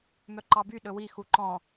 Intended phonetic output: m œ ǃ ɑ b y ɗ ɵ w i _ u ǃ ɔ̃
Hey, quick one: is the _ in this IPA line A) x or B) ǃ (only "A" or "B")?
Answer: A